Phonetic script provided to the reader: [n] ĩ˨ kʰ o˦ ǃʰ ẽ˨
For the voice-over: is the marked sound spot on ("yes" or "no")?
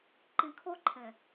no